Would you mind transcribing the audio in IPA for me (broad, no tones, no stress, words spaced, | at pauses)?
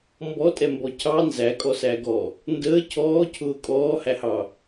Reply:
mbɔtʼɛmbɔ cʰɑ nzækʼɔsæɡɔ | ndəː cʰɔːcʰʊː kʼɔːhæhɑ